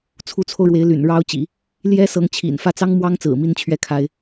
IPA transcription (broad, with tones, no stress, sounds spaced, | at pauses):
t͡sʰ u˧˥ t͡sʰ o˧ ʊ̯ ɻ w e˧˥ ɪ̯ l y̰˨˩ n ɻ ɑ˥ ʊ̯ t͡ɕ ḭ˨˩˦ | l j ɛ˥ s ɤ˧˥ ŋ t͡ɕʰ ḭ˨˩ n f ä˥˩ t͡s ɑ˥ ŋ m w ɑ˥ ŋ t͡s ɹ̩˨˩ m i˥˧ n t͡ɕʰ ɥ ɛ˥˩ kʰ a˥ ɪ̯